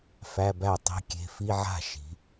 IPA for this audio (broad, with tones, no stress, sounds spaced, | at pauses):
f æ˧˥˧ b æ˥˩ tˤ i̤˧˥˧ kʲ e̤˧˥˧ f i˧˥˧ ʕ a̤˥˩ ʃ i̤˩˧